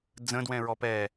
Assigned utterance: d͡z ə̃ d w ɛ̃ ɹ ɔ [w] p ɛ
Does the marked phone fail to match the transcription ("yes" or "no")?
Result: yes